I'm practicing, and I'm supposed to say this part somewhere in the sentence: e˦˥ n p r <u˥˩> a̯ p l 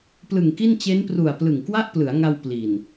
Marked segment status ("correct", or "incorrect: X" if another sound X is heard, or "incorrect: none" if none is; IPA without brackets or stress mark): incorrect: u˨˩